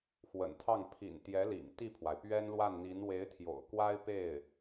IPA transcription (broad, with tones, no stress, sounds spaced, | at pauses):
x w ə̰˨˩ n t̪ʰ ɑ˥˩ ŋ pʰ ḭ˨˩ n t̪ j ɛ˧˥ l ḭ˨˩ ŋ t̪ i˥˩ pʰ w a˩ ɪ̯ p ɥ ɛ˥ n l w a˥˩ n n̪ i˧˥ n w e˧˥ ɪ̯ t̪ʰ j o̰˨˩ ʊ̯ k w a˥ ɪ̯ p e˥˩ ɪ̯